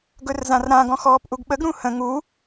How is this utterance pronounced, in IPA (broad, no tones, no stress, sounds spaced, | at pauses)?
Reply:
ɡ ɵ r z ã r ɾ ã ɡ ɔ̃ x ɔː p ʔ u ɡ ɓ ə ɡ ɾ ũ h ə̃ ŋ u